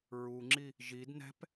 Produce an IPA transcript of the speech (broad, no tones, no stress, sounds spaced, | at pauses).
ɹ u ŋ͡ǁ i | ʒ i d n ɛ̤ p